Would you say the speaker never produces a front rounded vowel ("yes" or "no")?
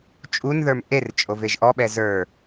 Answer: yes